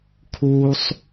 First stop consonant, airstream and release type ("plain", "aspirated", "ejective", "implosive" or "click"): aspirated